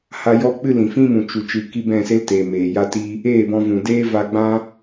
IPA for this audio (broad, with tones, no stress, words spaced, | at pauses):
ha˧jɔ˦ k͡pɨ˦lĩ˨fĩ˦mũ˨ t͡ʃu˨ t͡ʃɨ˨ki˧ bɛ̃˦˨se˦lte˨ meː˨ja˦ti˦ | eː˦˨bɔ̃˧vũ˨ deː˦va˧ɡ͡bã˦